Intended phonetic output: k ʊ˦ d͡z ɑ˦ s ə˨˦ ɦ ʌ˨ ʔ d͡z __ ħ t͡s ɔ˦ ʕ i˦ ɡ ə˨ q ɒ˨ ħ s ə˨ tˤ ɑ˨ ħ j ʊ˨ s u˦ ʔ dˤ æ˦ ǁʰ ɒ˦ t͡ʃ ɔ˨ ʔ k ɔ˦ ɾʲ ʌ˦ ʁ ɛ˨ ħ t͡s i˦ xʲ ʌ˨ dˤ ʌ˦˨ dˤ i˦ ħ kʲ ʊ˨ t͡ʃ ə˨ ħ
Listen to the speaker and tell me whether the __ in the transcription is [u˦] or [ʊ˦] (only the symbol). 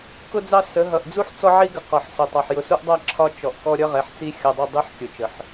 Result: u˦